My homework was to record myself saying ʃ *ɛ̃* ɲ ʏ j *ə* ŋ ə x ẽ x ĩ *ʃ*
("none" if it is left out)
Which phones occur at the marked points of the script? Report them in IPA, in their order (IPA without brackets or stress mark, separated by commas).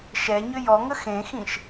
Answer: ɛ, ɔ, ʃ